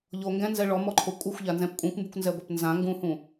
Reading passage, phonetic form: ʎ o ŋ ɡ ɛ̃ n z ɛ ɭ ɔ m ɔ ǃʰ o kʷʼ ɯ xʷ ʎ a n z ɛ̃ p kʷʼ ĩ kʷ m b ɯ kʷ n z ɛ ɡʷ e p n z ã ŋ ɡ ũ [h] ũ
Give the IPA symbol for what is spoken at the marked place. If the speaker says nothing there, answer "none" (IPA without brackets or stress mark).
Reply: h